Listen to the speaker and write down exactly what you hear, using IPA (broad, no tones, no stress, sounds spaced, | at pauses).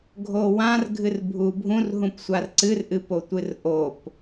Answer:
ɡʱ o w ã r ɡʱ ɨ r bʱ u bʱ ũ r ɦ ũ p sʷ a r ǀ ɨ r ʔ ɨ p o tʷ ɨ r ʔ o p